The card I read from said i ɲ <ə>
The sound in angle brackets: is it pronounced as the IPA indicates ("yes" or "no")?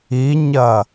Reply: no